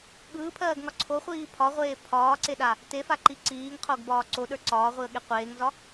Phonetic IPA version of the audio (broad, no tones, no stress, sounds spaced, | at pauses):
ɠ ɯː pʰ ɜː ɡ ŋ ɒ ǀʰ o χʷ iː pʰ ɒ ʁʷ eː pʰ ɒː ǀ e ɗ a | t e f a ǃ i ǀ iː ŋ qʰ o ɡ b ɒː ǀ o ɗ ə˞ ǀ ɒː ʁʷ i ə̯ ɠ e qʷ eː ŋ z ɒ